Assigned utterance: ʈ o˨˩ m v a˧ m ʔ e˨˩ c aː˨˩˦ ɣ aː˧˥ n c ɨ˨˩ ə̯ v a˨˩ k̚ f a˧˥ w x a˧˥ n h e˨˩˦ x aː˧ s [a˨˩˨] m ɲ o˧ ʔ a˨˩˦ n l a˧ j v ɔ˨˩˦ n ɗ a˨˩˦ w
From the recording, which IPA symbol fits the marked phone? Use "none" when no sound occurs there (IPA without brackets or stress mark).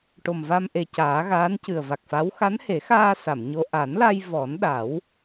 a˨˩˨